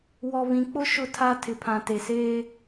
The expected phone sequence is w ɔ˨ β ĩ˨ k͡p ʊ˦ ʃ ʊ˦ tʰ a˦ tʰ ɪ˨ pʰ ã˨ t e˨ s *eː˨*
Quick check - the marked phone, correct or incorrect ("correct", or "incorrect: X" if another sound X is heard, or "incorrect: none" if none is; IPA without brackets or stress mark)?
incorrect: eː˦